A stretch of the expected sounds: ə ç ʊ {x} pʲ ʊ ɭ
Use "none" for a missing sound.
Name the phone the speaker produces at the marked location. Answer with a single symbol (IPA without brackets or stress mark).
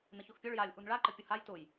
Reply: x